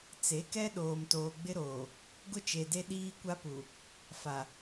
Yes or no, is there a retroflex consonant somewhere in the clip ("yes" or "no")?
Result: no